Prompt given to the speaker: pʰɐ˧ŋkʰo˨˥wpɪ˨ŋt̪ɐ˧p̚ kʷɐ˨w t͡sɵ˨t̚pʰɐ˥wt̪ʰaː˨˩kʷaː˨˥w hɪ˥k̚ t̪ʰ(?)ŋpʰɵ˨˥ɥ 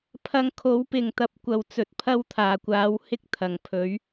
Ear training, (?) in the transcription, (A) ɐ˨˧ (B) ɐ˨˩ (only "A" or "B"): B